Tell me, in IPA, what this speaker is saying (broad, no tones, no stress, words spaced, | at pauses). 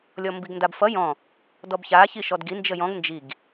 lʲɔmbiɡndabfʌ jɔ̃ | dɔbça çiʃɔdɡi nd͡ʒəjɔ̃ɡ nd͡ʒiɡ